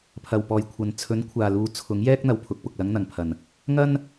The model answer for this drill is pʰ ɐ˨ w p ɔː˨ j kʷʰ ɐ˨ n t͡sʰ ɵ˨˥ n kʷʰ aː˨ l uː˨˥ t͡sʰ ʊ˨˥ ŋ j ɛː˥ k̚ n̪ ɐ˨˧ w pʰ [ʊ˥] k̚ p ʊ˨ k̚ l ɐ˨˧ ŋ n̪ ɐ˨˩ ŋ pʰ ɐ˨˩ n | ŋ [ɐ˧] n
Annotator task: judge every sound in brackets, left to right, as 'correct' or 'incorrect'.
incorrect, incorrect

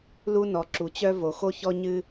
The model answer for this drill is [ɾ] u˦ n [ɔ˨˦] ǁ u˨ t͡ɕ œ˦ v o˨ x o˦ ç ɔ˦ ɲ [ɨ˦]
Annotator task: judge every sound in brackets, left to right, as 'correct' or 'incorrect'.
incorrect, correct, correct

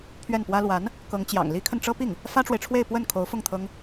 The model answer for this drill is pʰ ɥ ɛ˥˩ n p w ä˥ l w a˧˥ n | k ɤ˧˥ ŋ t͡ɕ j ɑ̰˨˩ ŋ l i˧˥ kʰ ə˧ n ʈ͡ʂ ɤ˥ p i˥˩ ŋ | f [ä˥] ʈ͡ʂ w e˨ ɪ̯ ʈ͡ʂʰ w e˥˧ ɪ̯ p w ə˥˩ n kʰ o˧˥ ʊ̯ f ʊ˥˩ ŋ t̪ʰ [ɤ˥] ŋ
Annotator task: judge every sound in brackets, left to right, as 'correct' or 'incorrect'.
correct, correct

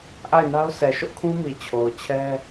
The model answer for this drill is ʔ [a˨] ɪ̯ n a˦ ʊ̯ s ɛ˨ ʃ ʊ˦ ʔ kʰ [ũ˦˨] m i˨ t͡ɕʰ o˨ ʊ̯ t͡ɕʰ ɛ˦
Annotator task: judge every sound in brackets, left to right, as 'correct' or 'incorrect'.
incorrect, incorrect

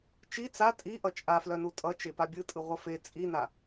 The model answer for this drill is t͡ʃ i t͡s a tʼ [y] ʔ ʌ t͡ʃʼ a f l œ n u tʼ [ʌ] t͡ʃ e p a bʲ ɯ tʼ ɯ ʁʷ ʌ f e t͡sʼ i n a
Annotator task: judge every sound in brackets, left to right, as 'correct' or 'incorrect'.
incorrect, correct

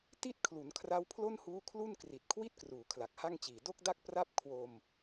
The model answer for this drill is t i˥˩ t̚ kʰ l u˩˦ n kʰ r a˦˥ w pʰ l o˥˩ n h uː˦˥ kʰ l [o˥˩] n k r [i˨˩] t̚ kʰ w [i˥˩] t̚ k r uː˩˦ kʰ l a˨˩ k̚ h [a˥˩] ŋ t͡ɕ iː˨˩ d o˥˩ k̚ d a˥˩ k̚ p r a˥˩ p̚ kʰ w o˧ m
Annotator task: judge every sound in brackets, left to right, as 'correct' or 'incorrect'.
incorrect, correct, correct, correct

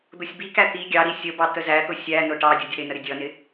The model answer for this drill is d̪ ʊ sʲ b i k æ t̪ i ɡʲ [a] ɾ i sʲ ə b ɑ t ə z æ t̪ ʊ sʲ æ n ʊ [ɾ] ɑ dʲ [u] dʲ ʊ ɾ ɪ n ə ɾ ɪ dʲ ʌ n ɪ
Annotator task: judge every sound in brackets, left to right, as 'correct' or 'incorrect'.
incorrect, incorrect, incorrect

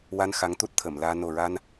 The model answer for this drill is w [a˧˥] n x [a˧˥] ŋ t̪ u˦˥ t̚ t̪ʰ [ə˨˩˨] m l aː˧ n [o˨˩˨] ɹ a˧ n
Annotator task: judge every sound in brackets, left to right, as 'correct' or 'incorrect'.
incorrect, correct, correct, incorrect

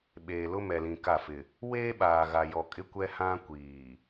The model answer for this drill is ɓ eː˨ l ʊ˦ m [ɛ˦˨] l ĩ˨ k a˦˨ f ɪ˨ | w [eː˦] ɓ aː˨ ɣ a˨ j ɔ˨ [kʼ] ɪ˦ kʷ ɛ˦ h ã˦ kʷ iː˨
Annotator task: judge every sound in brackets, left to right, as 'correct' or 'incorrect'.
incorrect, correct, correct

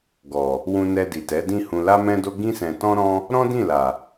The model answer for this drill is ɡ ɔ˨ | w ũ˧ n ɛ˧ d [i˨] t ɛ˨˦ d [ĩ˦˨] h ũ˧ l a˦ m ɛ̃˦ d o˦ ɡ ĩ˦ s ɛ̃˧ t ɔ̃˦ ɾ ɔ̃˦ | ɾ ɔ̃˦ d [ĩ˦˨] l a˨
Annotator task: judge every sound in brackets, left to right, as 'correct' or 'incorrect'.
correct, correct, correct

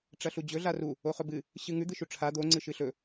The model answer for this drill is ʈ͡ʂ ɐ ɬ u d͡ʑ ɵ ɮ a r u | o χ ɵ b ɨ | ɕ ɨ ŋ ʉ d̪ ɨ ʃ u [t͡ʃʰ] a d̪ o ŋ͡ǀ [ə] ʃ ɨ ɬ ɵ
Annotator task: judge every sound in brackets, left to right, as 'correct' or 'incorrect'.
incorrect, incorrect

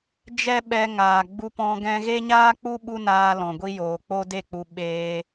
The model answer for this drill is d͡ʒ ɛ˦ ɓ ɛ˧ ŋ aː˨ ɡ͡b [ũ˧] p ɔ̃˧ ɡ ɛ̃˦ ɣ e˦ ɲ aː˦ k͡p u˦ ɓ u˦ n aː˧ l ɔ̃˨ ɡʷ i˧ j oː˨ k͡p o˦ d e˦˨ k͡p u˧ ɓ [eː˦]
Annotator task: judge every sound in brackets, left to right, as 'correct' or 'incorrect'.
incorrect, incorrect

